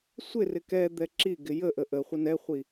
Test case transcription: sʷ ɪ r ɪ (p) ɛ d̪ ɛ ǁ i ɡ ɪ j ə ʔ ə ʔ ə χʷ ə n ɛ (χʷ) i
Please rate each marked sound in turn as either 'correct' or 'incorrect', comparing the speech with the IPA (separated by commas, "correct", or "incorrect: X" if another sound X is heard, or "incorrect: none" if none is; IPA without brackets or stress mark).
incorrect: k, correct